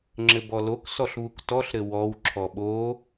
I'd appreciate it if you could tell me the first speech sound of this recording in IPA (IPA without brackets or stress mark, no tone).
ŋ͡ǁ